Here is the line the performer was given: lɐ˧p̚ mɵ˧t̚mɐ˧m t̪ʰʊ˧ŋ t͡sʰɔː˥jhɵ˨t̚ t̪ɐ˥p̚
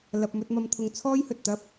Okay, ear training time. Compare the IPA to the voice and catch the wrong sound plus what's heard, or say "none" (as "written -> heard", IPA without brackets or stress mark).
none